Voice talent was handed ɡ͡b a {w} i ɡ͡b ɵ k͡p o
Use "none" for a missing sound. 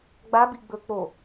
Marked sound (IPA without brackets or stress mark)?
b